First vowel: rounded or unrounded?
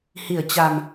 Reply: unrounded